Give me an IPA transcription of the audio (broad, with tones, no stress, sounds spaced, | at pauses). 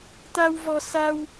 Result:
t̪ a˧ w v ɔ˧ s a˧ w